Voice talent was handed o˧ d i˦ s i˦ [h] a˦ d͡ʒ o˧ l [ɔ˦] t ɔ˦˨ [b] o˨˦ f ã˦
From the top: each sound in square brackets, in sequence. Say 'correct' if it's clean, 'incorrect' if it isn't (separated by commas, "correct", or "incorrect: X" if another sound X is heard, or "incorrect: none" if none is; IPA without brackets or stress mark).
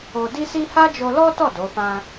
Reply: correct, correct, incorrect: d